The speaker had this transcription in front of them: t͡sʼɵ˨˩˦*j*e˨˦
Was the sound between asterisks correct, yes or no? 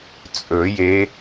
yes